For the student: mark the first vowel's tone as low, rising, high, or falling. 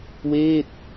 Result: falling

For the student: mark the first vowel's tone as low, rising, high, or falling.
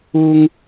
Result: high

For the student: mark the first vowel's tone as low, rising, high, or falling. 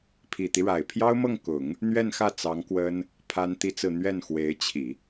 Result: low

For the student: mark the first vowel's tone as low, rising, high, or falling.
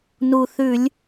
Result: low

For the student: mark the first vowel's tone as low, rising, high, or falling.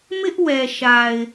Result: high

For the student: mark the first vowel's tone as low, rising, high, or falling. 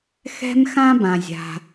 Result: high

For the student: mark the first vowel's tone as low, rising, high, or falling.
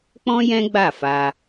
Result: high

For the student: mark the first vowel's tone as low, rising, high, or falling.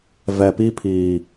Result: low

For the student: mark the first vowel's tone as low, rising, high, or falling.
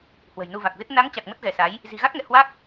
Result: low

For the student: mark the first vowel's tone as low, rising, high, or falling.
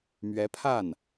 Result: rising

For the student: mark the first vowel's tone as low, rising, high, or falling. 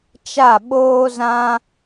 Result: falling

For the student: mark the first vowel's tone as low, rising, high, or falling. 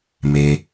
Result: low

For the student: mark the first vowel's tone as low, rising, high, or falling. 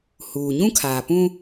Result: low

